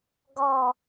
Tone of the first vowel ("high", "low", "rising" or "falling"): high